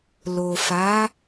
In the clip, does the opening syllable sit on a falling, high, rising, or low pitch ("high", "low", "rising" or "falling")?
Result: low